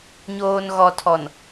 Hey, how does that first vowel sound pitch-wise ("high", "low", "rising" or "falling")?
low